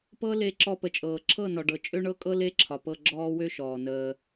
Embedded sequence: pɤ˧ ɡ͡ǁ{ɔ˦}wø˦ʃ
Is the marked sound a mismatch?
yes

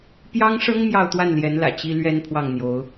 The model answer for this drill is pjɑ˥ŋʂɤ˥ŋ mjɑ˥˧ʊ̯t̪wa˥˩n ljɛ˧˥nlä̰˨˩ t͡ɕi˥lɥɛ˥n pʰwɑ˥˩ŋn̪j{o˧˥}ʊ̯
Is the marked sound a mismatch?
no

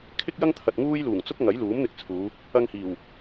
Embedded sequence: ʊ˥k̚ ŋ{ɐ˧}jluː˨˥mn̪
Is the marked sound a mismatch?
yes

